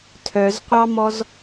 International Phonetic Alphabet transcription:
tʰœzqʷɑmɔz

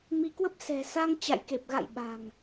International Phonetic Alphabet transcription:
mi˧kwə˦˥p̚ sɛ̤˨˩sa˧ŋ t͡ɕa̰˧˨jke˨˩p̚ɣa̰˧˨j ɓa̤˨˩ŋ

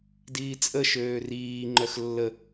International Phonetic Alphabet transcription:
diːt͡sʼə ʃøːriː ŋ͡ǃœxlːə

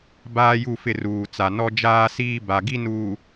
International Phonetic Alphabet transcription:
baː˦ju˦˨fɪ˦˨ ruː˨t͡sa˨nɔ˦ d͡ʒaː˦siː˦ ba˨ɡi˦nuː˨

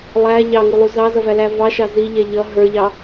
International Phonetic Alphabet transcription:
lˠæ ʎɑŋulˠu zɑzʌvælæ vɑʃɑ ziʎɛ ʎʌ ɦə˞ʎɑ

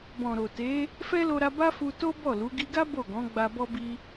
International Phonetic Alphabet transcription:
bɔ̃˨ɾo˨ te˨˦ | fɛ˦lo˧ɾa˧ ba˦fu˧ to˦ bɔ˦˨lu˨˦ ɡi˧ɡa˦ bo˦˨ɡɔ̃˨˦ ɡ͡ba˧bɔ˦bi˦

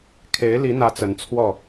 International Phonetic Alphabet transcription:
kʰe˧˥ɪ̯li˧˥n̪ä˧˥ t͡sə˧˥nt͡sʰwɔ˥˩

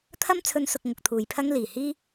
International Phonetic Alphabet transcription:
t̪ʰɐ˥m t͡sʰɵ˥nsʊ˧k̚ ŋʊ˧k̚t̪ʰuː˨jpʰɐ˥ŋ liː˨˩hiː˥

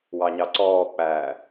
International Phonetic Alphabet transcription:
wɑɲɑǀɔːk͡pæː

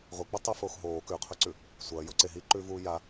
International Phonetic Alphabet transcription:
ʁʷɨk͡pɨ tˤefoːx ɦoː kʉqʰɵǀʉ | sʷɐː joǀe ɦiǃʉːvuː ja

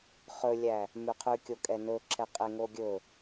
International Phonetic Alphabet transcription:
χɵlʲæ | mʉqʰʉkʲokʼɛ nɵǁʰɛ qʼeŋoɡʲɵ

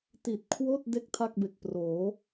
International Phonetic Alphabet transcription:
ti˨˩t̚kʰwoː˥˩t̚ de˥˩k̚ tʰa˥˩k̚be˨˩k̚proː˩˦

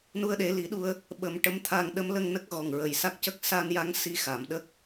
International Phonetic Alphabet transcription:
nu˧ə̯ɗe˨˩˦li˨˩˦ɗu˧ə̯ | ɓə˨˩˦mʈə˧˥mt̪ʰa˧ŋ ɗə˧˥mlə˧ŋnə˦˥k̚ ɣɔ˨˩ŋɹə˨˩jsa˦˥k̚cə˦˥k̚ sa˧n ja˧˥ŋ si˧xa˨˩˨mɗə˦˥k̚

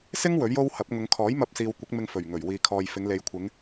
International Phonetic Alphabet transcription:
sɪ˥ŋ wɵ˨˥ɥjo˥whɐ˨˥p̚ ŋʊ˨˧ŋ kʰɔː˨˥jmɐ˧p̚siː˨w kʷɪ˨˥k̚mɪ˧ŋfɵ˨˩ɥ ŋɵ˨˩ɥwiː˨kʰɔː˨jfɪ˨˧ŋ le˨jkʷʰɪ˨˧ŋ

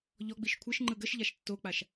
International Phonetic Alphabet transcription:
ʎɔɡ͡biʃ kʷʰəʃ ŋ͡ǃɯɡəʃʎaʃ tːok͡paʃ

